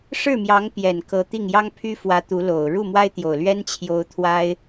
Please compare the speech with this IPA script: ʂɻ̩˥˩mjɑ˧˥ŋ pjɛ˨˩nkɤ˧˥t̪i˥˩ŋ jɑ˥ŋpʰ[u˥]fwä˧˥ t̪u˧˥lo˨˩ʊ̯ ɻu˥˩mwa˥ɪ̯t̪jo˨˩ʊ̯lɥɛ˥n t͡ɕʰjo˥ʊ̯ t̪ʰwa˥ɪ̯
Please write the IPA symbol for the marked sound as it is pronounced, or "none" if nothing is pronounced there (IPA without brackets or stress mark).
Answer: y˥